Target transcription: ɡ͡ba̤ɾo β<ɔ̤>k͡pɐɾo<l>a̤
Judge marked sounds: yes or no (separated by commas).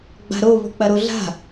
yes, no